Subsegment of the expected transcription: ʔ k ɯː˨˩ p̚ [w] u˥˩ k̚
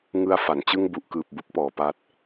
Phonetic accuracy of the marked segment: incorrect: b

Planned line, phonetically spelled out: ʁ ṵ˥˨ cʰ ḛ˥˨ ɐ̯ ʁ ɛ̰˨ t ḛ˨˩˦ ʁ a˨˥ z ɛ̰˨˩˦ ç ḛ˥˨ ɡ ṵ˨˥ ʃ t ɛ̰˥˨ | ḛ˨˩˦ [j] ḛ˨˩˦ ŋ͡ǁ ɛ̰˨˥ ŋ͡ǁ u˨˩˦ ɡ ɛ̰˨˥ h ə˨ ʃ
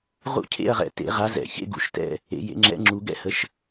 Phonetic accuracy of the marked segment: correct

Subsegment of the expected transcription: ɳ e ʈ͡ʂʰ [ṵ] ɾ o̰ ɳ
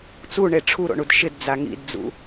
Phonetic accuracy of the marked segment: incorrect: u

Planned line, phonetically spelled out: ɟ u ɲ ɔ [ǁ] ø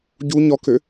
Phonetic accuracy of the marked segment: incorrect: k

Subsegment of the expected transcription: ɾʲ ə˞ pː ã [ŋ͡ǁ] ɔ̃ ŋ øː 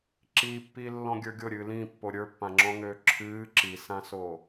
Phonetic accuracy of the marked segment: correct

